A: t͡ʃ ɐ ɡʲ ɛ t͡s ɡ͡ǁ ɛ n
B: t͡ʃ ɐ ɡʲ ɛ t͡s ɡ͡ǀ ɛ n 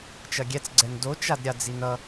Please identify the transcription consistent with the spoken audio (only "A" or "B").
B